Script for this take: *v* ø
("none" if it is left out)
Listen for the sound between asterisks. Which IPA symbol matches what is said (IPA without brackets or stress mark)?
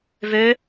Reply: v